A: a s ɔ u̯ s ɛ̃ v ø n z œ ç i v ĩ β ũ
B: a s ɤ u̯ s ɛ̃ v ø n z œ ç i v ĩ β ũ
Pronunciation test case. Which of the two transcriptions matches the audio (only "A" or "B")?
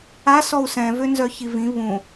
A